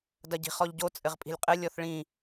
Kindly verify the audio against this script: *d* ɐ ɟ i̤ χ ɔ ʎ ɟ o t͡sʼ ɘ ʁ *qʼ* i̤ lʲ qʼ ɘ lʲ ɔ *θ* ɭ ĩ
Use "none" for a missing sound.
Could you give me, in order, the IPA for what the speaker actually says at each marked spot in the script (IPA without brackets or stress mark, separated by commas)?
d, pʼ, θ